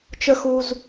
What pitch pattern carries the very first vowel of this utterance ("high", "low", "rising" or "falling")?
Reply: high